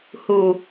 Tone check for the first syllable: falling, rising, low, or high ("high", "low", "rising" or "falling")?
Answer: low